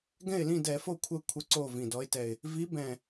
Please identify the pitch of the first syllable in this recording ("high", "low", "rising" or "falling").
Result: falling